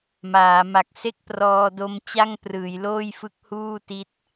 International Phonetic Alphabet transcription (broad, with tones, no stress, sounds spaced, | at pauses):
m aː˩˦ m a˨˩ k̚ s e˥˩ k̚ p r ɔː˧ d o˦˥ m t͡ɕ a˥˩ ŋ p r ɯː˩˦ j l oː˥˩ j f ɯ˦˥ k̚ h uː˥˩ t i˦˥ t̚